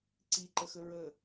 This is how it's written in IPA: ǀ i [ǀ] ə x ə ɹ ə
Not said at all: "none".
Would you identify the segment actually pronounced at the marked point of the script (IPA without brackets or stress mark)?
ǃ